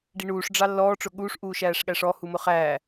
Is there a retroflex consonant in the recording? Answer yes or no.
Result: yes